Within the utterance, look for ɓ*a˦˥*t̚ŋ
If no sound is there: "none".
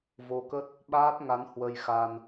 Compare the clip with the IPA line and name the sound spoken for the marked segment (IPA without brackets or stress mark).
aː˦˥